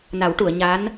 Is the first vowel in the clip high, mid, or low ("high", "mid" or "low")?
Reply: low